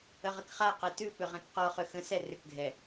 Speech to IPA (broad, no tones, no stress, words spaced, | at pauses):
əʁəkχaqɛ tʉpʏ ʁɛ̃kqɔχʏ xə̃sɛ rʏkɡʱɛ